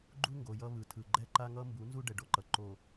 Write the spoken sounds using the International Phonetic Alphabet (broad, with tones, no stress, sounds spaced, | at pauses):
ɡ͡ǃ u˦ ŋ ɡ o˨ j ʌ˦ β ɯ˨ tʰ ɯ˨ ɡ͡ǃ ɛ˦ ǃ a˦ ŋ ʌ˦ m b u˨˦ n z u˦ ɖ ɛ˨ ɖ o˦ ǃ ʌ˨ ǃ o˨